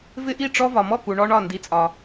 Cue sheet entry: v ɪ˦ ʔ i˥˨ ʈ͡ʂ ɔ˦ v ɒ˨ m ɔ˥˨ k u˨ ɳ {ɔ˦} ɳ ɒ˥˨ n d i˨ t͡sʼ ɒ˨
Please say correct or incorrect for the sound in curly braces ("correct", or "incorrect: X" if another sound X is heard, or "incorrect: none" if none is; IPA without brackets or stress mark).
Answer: correct